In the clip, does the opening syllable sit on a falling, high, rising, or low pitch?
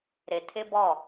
low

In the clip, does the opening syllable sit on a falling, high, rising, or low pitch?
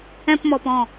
high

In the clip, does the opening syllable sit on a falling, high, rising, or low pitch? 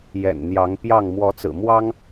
low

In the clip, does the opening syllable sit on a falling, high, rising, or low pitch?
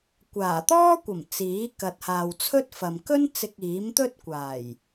low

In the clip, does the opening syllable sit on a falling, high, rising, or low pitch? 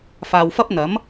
low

